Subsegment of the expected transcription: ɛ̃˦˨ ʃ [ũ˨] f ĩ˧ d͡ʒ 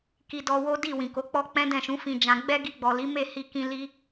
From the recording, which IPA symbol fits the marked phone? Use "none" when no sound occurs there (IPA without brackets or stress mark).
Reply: ũ˨˦